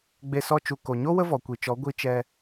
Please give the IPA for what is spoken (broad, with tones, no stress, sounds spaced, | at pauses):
ɡ͡b e˧ s ɔ˧ t͡ʃ u˨ k o˨ ɲ o˦ w ə˦ v ɔ˨ kʷ i˨ t͡ʃ ɔ˨˦ ɡʷ i˧ t͡ʃ ɛ˧